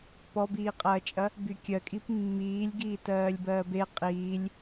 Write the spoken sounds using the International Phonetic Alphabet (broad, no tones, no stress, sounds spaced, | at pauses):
p ɔ b iː qʼ ɐː t͡ʃʼ ɐ | b y kʲ ɜ kʼ i p mː iː lʲ ɡ iː t ɜː lʲ b ɜː b e qʼ iː lʲ